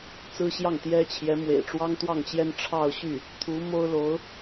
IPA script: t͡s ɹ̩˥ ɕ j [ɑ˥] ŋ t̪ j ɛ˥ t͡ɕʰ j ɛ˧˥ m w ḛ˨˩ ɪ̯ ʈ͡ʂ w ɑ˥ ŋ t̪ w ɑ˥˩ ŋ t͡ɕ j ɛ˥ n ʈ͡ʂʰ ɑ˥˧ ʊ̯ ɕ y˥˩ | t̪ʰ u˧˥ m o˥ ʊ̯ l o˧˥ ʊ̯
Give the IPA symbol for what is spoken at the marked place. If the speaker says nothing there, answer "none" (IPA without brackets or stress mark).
ɑ˥˩